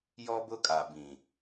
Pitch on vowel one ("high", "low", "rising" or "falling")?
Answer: high